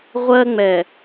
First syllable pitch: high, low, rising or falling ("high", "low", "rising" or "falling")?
high